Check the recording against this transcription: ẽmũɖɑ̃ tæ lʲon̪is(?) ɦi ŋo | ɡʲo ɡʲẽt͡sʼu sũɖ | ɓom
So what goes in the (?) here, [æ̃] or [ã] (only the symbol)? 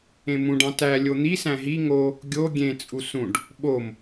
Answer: æ̃